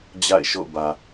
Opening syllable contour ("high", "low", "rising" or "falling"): falling